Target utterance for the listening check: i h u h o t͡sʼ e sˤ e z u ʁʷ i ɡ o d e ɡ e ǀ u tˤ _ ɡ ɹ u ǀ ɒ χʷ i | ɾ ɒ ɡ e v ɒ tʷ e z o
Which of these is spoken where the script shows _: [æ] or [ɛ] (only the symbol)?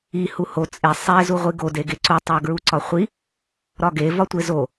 æ